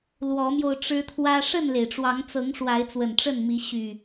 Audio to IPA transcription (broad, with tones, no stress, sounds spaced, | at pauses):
l w ɔ˨˦ m j o˧ ʊ̯ ʈ͡ʂ ɻ̩˦ t̪ʰ w ä˦ ʂ ə˥˨ n l e˩ ɪ̯ ʈ͡ʂ w ɑ˨˦ ŋ t͡s ɤ˨˦ ŋ ʂ w a˨˦ ɪ̯ t͡s w ə˨˩ n ʈ͡ʂ ə˥˨ n m i˨˦ ɕ y˨˩